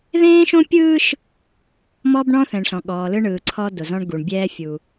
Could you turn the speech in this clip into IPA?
ðẽː˦ʃõ˦pʲɯː˦ʃ | mɔ˦bɳɔ̃˦θɛ̃˨ɳ ɬɔ̃˨ɠɔː˨lɯ˦ɳɯː˨ ǀʰɔ˦do˨zɔ̃˦ɳ ɡu˨ɳbʲɛː˦fʲu˨

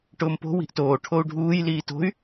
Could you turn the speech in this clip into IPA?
ʈʊːmpo̤ wi̤ʔtoː ʈʰou̯ɖʱuːj liːto̤y̯

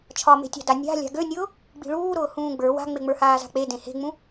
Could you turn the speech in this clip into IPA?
t͡ʃʰɒme̤tʲa̤da nʲa̤ lʲa̤ɡønʲʊː | ɡ͡bi̤ɭuːɾʊː hũːɡ͡bə˞ wa̤ŋ͡meŋ͡mə˞ haːza̤k͡pe dẽhe̤ŋ͡mũ

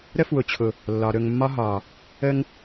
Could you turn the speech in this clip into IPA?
ɾə˦fwʊ˨t͡ɕʰʊ˨ | lːɒ˨ ɾɵ˨ŋmːɒ˦ ɦɒ˨ | ə˦ŋ

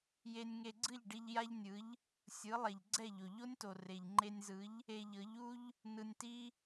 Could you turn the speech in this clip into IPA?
je˧nʲŋe˧ɡ͡ǀɯ˥˩ʎɖi˧ʎ ja˥ʎnʲɯ˩˥ʎ | sʲɯ˩˥lˠɛ˩ʎ ɡ͡ǀɛ˥˩ʎo˩ʎo˥nʲto˩ re˩ʎŋ͡ǃe˧nʲzɯ˩˥ʎ | e˧ʎɤ˩˥ʎu˥ʎ | nɯ˧nʲti˥

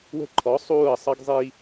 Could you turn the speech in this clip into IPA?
wə̤˦ǃʰɔ˨˦ sˤuː˦˨ə̯sˤʌ˦ɡzˤi˦

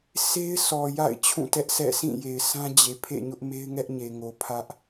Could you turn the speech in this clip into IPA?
se˦ɪ̯sʰɔ˨ ja̰˦˨ɪ̯ t͡ɕʰũ˦˨tɛ˦ʔsɛ̰˦˨ sʰĩ˦˨je˨ɪ̯sʰã˦ d͡ʑe˨ pʰḛ˦˨ɲʊ˦ʔme˦ɪ̯ŋɛ˦ʔ ɲe˨ŋo˨ pʰä˦ʔ

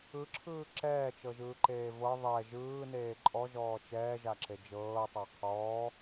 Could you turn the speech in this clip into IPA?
ɯǁʰɯː ǁɛːt͡ʃɤʒɯːǃeː vɤ ðˤɛ ʒɯːneː ǃʼɔʒɔː t͡ʃɛːʒaǁe d͡ʒɤːtˤa qʰɔː

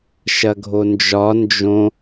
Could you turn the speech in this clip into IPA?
ʃɐɡʱond͡ʒɒ nd͡ʒõ

